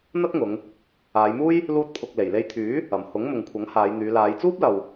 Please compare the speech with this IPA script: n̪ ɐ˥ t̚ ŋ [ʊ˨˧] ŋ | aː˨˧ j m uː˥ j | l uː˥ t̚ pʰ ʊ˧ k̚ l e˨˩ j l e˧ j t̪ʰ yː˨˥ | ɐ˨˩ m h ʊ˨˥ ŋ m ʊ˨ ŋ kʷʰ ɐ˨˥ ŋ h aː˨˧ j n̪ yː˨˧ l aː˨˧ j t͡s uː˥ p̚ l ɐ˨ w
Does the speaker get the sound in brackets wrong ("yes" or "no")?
no